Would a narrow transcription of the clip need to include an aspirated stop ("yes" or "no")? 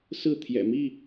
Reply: yes